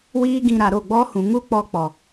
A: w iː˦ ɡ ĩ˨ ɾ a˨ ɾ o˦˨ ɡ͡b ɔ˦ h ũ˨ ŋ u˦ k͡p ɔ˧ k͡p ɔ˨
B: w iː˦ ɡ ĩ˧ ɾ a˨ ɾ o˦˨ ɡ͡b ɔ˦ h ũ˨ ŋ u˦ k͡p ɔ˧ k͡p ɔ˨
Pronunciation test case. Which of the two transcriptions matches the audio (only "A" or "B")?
B